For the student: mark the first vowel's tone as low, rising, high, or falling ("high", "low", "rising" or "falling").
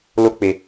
high